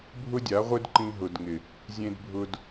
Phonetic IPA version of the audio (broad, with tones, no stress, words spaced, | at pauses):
bʱʊ˦dʲa˨˦ʁʷɪ˦d ǃĩ˧ɦʊ˨dŋɪ˨ | zʲẽ˧dbʱʊ˧d